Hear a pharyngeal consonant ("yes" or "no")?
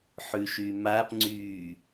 yes